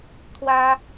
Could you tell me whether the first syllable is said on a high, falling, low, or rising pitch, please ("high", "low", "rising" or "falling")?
high